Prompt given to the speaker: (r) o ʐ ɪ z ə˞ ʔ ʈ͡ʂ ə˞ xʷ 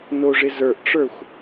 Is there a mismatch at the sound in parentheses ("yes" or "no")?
yes